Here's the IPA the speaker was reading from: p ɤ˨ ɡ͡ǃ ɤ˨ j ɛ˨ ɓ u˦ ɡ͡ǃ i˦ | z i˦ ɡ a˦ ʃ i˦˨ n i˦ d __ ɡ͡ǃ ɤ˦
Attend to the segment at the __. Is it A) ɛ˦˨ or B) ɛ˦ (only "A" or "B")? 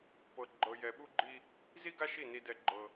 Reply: B